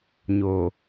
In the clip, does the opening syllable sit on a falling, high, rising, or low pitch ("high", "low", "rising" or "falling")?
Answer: low